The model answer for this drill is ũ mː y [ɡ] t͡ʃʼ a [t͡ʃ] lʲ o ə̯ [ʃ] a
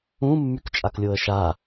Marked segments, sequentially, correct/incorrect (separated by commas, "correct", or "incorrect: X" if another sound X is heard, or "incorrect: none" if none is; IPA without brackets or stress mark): incorrect: k, incorrect: k, correct